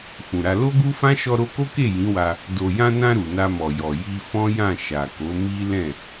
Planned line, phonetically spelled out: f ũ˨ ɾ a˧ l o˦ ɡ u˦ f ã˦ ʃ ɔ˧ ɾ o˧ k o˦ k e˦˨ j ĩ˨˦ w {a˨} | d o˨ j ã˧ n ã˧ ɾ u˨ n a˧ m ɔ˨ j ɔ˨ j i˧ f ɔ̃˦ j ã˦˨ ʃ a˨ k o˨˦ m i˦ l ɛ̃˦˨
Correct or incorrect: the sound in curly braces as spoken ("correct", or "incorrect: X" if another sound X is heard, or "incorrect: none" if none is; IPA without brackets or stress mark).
incorrect: a˧